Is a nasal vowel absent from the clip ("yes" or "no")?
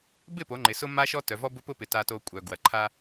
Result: yes